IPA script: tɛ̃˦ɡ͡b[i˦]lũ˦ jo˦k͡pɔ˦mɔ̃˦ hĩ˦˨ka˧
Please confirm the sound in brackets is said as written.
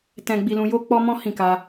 yes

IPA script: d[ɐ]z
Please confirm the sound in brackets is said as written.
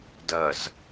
yes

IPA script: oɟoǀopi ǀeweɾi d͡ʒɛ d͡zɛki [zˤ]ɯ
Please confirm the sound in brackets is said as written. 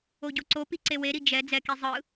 yes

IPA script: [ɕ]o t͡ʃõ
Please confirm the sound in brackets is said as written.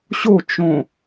yes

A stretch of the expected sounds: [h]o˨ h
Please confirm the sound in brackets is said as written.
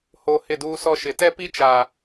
yes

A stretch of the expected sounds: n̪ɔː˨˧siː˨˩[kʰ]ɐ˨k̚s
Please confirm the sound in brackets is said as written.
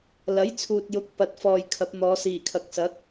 yes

